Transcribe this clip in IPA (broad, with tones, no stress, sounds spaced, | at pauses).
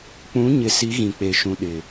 k͡p ũ˨˦ ɲ ɪ˨ s i˨˦ ɣ ĩ˨ k͡p e˨ ʃ ũ˨ ɗ ɪ˨